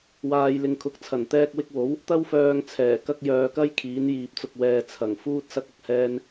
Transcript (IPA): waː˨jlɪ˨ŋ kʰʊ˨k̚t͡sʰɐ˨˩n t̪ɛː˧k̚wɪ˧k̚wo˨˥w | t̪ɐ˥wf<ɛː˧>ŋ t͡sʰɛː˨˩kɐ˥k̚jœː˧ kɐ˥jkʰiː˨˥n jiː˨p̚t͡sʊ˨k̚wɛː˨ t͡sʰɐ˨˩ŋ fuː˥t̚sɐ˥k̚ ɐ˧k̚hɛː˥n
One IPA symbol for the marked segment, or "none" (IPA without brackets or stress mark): œː˧